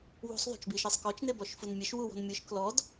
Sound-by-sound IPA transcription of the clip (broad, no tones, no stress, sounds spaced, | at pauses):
w ṳ sˤ ðˤ o̤ t͡ʃ b i ʃ i sˤ k ɔ t͡ʃ n e b ɔ ʃ f u n mʲ e ʃ w u w ɔ̤ n mʲ ɯ ʃ k l ɔ d